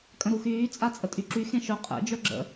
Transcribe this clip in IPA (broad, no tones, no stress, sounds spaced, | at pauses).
kʼ ə̃ ɾ u x yː t͡sʼ a t͡sʼ ə tʼ y ǁ y x ẽ ʃ œ qʼ ɛ̰ d͡ʒ œ ɡ͡ǁ ə̰